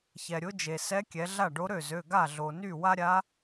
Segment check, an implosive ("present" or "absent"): absent